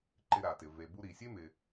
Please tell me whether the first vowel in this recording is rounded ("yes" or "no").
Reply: no